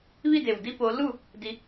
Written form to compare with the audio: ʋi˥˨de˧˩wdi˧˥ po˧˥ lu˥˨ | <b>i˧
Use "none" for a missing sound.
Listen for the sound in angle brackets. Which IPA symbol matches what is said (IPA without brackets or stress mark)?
d